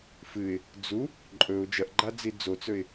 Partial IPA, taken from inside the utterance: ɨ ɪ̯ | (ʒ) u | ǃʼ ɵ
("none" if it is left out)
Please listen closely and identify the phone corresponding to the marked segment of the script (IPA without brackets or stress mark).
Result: d͡z